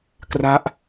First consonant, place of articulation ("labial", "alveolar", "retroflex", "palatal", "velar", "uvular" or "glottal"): velar